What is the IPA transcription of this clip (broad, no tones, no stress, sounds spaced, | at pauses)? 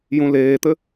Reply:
j ũ l eː t̪ ɘ